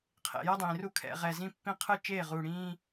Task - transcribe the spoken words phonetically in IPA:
qʰ ḛ˨ j ʌ˦ dˤ ĩː˨ r u˦ kʰ ɛ̰˦˨ ʁ ɛ˨ z ĩ˦ pː ĩ˦ qʰ ɯ˦ t͡ʃ eː˦˨ ʁ uː˨ ɽ ĩː˦

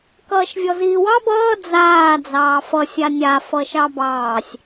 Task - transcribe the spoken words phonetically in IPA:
k ʌː ʃ vʲ ɔ z iː w ɑ b ʌː d͡z aː d͡z ɑː f ʌ sʲ a nʲ a f ʌ ʃ ɑ b ɑː sʲ

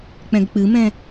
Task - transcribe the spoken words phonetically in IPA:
k͡p ɛ̃ ɡ k͡p ɨ m ɛ̃

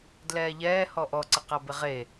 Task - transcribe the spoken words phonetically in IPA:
d l ɛː ʎ ɛː h ɔ ʔ ɔ ǀ ə q a b ɪ ʁ e

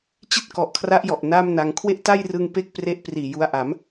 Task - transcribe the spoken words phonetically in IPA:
t͡ɕ i˥˩ t̚ k ɔ˨˩ ʔ kʰ r a˦˥ ʔ j ɔ˨˩ ʔ n aː˥˩ m n a˧ ŋ kʰ w e˥˩ ʔ t a˥˩ j r ɯ˧ ŋ p e˥˩ k̚ p r e˦˥ ʔ p r iː˨˩ j u˧ a̯ ʔ a˩˦ m

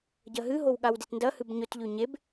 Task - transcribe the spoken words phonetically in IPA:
ɟ ɐ ɦ ɨ ɦ o w ɠ a w d e t n d ɐ h ɨ b ɲ ɵ t ʎ ʉ ɲ e b

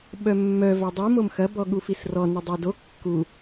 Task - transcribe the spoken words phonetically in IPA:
ɓ œ mː œ v œ dˤ i m o m x ɐ b ɔ ɠ u f i s r ɔ n ʊ dˤ e d o kː u

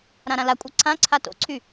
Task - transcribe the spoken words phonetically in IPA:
ɾ ã ɾ ã l a kʷʼ a ǀʰ ã ǀʰ a t o̰ ǀʰ y

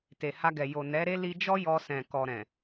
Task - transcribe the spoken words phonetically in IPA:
t e˨ h a˧ ɡ ɛ˨ j o˨ n ɛ˨˦ ɾ e˦ l i˧ d͡ʒ ɔ˦ j ɔ˧ s ɛ̃˨ k ɔ˨ ɾ ɛ̃˨

